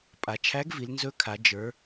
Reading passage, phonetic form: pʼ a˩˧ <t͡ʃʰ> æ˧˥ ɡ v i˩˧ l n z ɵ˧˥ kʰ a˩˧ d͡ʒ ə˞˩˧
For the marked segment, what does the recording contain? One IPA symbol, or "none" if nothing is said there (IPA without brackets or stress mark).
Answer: t͡ʃʰ